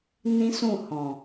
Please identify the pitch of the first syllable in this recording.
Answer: high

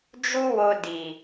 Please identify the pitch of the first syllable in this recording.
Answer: high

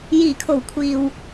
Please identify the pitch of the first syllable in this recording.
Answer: low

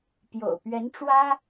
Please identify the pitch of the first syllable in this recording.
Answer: low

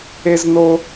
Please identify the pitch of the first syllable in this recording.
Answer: high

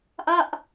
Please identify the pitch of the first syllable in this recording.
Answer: falling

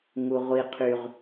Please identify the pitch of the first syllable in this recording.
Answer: high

